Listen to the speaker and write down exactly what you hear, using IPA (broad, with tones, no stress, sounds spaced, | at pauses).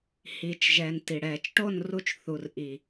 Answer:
h iː˨ t͡ʃ ʒ ɛː˨ n t i˨ ɽ ɛː˨ t͡ʃ ʈ o˦˨ n r u˧ t͡ʃ θ u˨ r ʔ i˨